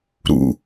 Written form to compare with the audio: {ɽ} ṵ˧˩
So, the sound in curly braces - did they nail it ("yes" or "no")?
no